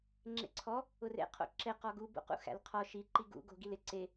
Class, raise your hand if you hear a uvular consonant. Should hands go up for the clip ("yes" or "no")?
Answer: yes